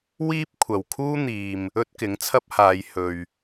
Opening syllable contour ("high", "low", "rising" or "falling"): high